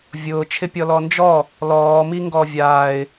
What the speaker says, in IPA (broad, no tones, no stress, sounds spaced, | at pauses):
vʲ ʊː t͡ʃʰ ɪ pʲ ɔ l ɔ n d͡ʒ ɔ | l ɔː m i ŋ ɡ ɔ vʲ aː ɪ̯